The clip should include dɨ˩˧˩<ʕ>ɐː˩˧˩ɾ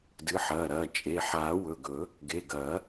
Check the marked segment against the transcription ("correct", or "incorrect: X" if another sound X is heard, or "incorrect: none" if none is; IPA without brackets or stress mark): incorrect: ħ